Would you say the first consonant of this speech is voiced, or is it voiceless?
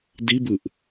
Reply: voiced